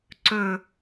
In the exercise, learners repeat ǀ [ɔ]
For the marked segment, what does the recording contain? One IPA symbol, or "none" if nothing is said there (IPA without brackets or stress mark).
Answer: ɵ